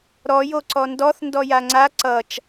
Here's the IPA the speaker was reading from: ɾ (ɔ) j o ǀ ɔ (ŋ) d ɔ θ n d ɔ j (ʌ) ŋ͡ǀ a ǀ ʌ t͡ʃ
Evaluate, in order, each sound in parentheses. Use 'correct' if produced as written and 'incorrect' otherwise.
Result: correct, incorrect: n, incorrect: a

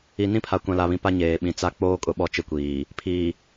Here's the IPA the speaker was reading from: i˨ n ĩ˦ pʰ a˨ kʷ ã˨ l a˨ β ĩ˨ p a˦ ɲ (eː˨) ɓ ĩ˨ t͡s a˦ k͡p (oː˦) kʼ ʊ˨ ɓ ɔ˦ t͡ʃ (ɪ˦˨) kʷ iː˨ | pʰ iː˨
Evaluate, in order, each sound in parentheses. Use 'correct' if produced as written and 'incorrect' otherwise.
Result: correct, correct, correct

